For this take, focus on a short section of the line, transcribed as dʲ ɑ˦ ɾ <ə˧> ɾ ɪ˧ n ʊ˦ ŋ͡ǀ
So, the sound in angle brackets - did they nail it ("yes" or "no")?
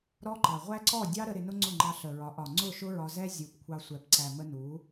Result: yes